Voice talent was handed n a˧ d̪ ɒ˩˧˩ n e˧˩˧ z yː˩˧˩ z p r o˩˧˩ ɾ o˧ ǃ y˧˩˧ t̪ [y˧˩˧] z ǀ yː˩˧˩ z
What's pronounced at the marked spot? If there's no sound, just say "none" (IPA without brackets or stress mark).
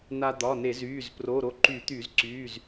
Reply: y˧˩˧